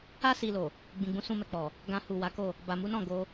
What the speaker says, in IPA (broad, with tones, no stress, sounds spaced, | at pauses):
a˦ s i˧ l o˨ | ɡ͡b ĩ˨ ɡ͡b ũ˧ s ũ˧ m ɛ˨ k͡p ɔ˨ | ɡ ã˧ h u˨ w a˨˦ k o˦˨ | b a˨ m u˨˦ n ɔ̃˦˨ ɡ o˧